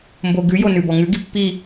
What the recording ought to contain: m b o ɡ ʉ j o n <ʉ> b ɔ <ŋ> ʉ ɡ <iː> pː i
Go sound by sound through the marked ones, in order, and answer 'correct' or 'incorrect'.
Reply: correct, correct, incorrect: i

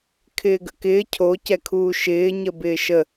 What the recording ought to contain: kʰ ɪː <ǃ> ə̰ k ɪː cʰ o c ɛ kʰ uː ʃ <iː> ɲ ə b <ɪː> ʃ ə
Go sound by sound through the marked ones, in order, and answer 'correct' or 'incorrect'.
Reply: incorrect: ɡ, incorrect: ɪː, correct

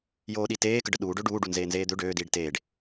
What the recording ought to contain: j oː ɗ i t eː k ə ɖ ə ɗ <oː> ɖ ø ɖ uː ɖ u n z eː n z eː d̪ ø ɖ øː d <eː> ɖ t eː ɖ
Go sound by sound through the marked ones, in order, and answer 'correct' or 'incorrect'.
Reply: incorrect: uː, incorrect: iː

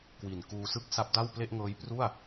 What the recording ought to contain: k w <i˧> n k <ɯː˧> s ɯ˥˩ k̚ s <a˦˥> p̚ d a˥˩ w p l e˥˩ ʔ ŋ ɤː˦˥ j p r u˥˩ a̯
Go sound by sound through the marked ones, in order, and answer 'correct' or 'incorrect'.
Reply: incorrect: i˨˩, incorrect: uː˧, correct

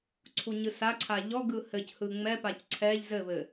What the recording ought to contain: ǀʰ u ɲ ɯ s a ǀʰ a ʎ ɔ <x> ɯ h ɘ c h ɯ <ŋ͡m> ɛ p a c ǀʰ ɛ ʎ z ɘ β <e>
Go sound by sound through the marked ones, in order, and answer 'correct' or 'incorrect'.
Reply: incorrect: ɡ, correct, incorrect: ɘ

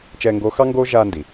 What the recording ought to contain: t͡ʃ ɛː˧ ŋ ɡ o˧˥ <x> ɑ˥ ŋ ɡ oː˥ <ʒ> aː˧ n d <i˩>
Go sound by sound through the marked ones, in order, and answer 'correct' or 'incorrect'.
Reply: correct, correct, correct

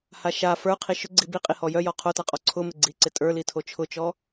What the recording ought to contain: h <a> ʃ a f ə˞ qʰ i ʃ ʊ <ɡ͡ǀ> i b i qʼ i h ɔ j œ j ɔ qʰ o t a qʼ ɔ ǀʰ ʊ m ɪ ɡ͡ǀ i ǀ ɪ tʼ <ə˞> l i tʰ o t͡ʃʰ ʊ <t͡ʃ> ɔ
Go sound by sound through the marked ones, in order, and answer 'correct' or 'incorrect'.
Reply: correct, correct, correct, correct

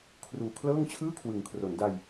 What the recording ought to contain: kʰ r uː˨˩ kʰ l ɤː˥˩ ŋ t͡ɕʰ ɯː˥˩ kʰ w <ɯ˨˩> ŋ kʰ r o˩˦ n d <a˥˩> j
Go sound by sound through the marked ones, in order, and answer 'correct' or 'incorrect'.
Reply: incorrect: ɯ˩˦, incorrect: a˧

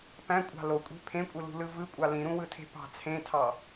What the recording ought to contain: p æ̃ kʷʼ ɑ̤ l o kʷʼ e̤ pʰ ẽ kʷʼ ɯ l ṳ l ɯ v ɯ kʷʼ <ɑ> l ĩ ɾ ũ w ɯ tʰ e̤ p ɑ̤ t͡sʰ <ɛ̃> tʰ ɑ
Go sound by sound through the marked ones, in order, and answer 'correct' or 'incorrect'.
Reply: correct, incorrect: ẽ

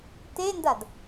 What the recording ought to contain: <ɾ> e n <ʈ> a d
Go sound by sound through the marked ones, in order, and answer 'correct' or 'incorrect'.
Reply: incorrect: t, incorrect: d

